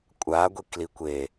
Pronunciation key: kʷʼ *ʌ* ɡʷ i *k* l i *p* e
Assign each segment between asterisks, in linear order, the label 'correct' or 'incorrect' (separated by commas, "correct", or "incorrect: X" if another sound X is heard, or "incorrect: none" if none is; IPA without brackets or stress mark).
incorrect: a, correct, incorrect: kʷ